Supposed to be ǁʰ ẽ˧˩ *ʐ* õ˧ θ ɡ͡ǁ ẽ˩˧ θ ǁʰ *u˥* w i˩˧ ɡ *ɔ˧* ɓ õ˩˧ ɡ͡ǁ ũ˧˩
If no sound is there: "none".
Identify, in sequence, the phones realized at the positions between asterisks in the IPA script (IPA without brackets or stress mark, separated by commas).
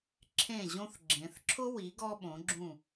ʑ, ʊ˥, ɔ˧